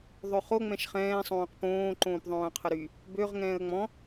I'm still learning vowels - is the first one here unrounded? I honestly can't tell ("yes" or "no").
no